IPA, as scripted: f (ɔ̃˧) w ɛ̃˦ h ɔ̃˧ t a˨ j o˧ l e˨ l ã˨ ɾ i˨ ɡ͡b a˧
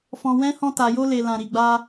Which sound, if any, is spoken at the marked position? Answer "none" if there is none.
ɔ̃˧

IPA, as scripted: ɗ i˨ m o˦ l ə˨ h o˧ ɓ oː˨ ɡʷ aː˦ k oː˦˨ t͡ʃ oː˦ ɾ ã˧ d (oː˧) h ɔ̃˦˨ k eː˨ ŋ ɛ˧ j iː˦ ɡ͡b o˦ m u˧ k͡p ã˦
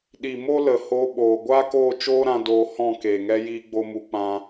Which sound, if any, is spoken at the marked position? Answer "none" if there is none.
oː˧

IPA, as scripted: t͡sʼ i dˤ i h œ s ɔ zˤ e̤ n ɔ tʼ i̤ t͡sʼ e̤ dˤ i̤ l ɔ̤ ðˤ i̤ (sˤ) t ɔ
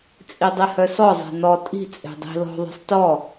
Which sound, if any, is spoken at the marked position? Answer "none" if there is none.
sˤ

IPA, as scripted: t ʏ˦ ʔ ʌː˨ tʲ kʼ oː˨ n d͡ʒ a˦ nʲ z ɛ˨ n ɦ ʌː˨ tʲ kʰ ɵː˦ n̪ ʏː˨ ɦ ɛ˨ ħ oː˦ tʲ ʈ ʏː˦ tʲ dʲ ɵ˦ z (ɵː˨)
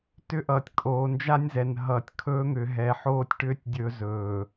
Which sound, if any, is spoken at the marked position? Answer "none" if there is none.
ɵː˨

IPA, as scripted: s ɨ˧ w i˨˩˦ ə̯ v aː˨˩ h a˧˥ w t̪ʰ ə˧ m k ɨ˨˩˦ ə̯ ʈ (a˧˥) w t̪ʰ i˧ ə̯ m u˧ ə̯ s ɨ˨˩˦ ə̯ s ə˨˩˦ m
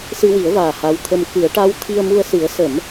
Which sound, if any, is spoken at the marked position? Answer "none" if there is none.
a˧˥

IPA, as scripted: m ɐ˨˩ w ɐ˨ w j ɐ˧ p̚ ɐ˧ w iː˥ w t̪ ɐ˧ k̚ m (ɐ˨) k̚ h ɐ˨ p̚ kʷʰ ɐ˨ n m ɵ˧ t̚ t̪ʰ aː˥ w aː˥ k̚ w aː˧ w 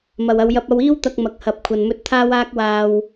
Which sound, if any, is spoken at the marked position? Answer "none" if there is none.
ɐ˨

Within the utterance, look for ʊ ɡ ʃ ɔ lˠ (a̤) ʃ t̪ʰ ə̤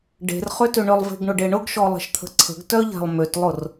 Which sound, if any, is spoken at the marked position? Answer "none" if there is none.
ə̤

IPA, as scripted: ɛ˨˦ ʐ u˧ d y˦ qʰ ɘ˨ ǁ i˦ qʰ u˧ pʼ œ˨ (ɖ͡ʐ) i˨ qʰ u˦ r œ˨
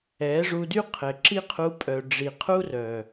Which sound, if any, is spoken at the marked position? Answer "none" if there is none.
ɖ͡ʐ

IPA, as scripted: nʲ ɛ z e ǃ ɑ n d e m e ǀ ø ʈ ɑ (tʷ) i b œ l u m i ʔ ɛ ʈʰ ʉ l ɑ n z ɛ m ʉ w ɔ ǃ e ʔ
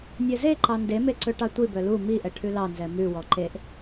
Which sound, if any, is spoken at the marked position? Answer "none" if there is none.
tʷ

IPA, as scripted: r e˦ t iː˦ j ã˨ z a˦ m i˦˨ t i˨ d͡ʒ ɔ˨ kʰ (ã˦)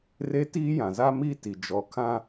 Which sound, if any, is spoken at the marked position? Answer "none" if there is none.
ã˦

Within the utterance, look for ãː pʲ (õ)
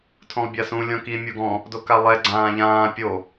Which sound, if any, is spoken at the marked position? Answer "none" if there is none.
o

